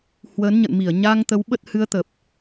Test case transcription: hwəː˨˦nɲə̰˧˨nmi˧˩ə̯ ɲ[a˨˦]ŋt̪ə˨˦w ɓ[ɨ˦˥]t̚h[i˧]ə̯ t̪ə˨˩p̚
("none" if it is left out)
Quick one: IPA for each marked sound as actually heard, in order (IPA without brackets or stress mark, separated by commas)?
a˧, ə˦˥, ɨ˧